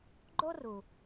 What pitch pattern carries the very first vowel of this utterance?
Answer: high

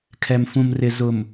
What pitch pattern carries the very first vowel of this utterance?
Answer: low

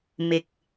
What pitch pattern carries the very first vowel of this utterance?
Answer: low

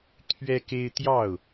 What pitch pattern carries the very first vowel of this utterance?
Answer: high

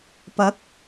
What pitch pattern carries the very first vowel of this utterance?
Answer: rising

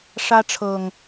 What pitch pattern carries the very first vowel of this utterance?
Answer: high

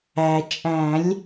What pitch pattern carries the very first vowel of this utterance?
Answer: low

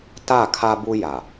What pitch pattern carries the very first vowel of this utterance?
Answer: falling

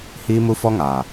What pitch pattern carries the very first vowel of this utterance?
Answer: high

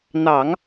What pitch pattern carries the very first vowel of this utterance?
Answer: low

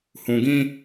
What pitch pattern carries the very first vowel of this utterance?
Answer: low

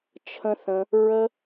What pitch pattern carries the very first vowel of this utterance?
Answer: high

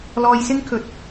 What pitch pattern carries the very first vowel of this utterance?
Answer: low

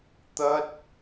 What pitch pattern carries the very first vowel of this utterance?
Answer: high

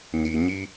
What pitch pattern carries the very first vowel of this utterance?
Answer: low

